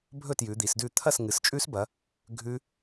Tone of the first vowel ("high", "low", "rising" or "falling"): falling